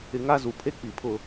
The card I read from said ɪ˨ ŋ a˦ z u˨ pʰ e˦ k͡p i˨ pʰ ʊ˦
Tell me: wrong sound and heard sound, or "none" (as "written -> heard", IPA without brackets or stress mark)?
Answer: none